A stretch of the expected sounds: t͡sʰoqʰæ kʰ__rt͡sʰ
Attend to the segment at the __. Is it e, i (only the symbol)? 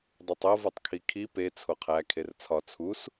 e